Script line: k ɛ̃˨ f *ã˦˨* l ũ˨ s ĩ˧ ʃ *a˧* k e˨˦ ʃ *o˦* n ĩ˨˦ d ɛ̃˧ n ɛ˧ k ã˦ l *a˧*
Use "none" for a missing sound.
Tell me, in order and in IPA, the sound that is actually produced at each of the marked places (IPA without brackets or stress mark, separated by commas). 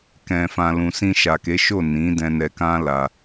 ã˨, a˨, o˦˨, a˧